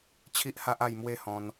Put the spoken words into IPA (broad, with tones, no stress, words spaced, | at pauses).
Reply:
t͡ɕʰi˦ʔha˦ʔ a˥˧jmwe˦hɔ̃˧n